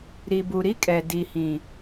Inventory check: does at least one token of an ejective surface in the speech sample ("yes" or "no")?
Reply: yes